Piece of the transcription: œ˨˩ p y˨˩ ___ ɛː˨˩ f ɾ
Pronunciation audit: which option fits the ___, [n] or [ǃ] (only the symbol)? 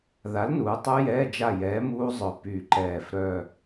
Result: ǃ